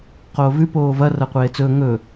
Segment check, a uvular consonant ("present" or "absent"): present